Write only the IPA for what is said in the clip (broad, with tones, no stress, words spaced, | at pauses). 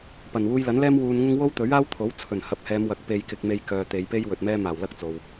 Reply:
pɐ˨˩nwuː˧jlɐ˨˥nlɛː˥m wuː˧nŋʊ˥ŋ wo˥wt̪ɵ˨˥ɥaː˥wt̪ʰo˨˥w t͡sʰɵ˨˩nhɐ˨˥p̚hɛː˨˧m wɐ˨˥k̚ pe˧jkɪ˧k̚me˧j kœː˨t̪e˨˧jpe˥j wɵ˨t̚mɛː˥ maː˨˩wlɐ˥k̚ t͡so˨w